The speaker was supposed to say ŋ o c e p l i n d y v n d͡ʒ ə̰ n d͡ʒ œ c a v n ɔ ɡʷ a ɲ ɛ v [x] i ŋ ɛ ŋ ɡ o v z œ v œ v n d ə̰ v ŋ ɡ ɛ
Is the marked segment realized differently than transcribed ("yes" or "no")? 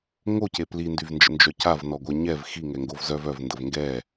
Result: no